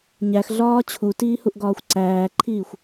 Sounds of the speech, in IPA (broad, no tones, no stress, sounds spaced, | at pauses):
ɲ æ x ɮ ɒː t͡ɕʰ u t iː h u ʔ ɡ ɒː xʷ ǀ æː ǃʰ iː xʷ